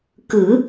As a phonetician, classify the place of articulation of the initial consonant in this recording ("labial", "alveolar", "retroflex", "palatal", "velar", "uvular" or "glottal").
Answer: velar